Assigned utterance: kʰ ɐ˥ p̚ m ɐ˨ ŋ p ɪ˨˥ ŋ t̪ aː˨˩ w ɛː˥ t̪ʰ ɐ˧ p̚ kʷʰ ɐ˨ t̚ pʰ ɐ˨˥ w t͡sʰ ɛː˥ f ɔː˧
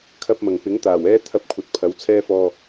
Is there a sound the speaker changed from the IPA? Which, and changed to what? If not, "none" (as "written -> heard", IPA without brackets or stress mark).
none